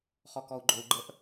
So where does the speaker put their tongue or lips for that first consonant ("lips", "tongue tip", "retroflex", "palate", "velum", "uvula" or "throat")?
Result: uvula